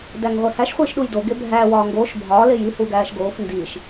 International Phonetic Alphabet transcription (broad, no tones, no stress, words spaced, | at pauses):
dæŋʁʷehæʃ χʷiːʃɗujdo ɡebʱæː wɒːŋɡoːʃ bʱɒː leji huɡæːʃɡoːf ndiːʃ